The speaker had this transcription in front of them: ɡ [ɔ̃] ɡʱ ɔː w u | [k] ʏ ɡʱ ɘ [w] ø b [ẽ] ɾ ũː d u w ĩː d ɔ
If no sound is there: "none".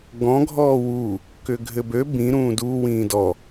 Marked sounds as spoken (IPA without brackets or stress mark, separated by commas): ɔ̃, k, b, ĩ